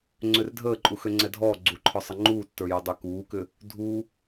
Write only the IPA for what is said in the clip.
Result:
ŋ͡ǀørdʱəː ǃʼuxøŋ͡ǀɛdʱɔː ɡ͡ǀuǃʰɔsˤə ŋ͡ǃuːtːə˞jødˤø kuːkʏː | dʱuː

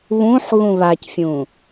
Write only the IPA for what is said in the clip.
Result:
βũħ ɣũβacfʲũː

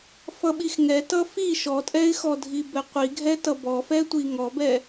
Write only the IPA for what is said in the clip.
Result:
fʌɓixŋɛ tʌfi ʃɔtʼɛɪ̯xɔdʱi bɛqʷiɡʱɛtʌ bɔfɛtʷi ŋɔbɛ

